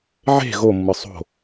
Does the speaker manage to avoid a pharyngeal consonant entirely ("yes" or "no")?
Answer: no